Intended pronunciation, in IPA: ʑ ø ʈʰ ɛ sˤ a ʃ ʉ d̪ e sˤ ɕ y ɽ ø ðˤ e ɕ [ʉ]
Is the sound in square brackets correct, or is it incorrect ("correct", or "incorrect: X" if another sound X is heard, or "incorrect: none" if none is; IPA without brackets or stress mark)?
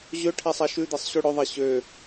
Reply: incorrect: ø